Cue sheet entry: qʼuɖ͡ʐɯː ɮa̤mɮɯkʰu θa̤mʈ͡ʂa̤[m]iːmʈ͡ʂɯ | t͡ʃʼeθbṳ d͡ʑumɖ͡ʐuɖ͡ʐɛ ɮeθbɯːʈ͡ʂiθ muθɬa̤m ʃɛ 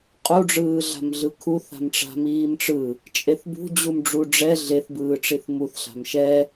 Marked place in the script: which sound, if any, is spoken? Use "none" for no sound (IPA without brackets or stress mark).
m